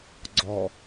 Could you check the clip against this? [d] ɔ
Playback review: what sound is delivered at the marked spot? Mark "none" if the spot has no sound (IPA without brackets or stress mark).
ɡ͡ǀ